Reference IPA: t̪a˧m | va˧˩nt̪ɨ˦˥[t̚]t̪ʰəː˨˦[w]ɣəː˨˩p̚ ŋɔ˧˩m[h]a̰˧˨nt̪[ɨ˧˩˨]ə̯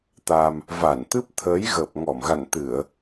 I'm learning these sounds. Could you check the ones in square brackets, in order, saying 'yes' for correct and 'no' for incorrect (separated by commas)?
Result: no, no, no, yes